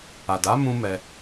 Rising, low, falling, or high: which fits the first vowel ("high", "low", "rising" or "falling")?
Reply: low